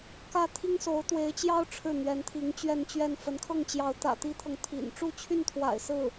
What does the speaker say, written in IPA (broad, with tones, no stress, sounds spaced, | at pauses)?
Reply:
k ä˥˩ t̪ʰ i˥ ŋ s o˧˥ ʊ̯ t̪ w e˧˥ ɪ̯ t͡ɕ j ɑ˥ ʊ̯ ʈ͡ʂʰ ɻ̩˥˩ n̪ ɥ ɛ˧˥ n t̪ʰ i˧˥ ŋ t͡ɕ ɥ ɛ˥˧ n t͡ɕ ɥ ɛ˥˩ n f ə˧˥ n kʰ ɤ˥˩ ŋ t͡ɕ j ɑ˧˥ ʊ̯ t̪ ä̰˨˩ t̪ i˥ t̪ʰ ɤ˨ ŋ t̪ʰ ḭ˨˩ n ʈ͡ʂ u˥˧ t͡ɕʰ y˥˩ n t̪ʰ w a̰˨˩ ɪ̯ s ɹ̩˥˩